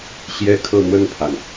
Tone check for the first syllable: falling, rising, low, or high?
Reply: falling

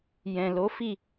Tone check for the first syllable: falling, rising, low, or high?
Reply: low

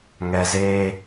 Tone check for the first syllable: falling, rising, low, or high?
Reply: low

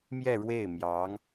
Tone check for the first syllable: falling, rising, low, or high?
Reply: falling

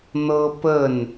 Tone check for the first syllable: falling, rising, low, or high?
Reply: high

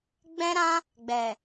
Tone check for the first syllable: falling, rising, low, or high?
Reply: high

